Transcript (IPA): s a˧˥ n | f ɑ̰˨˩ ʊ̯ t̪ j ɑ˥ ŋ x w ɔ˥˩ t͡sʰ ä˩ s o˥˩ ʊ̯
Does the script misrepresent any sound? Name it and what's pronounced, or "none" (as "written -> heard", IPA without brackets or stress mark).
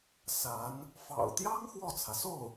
none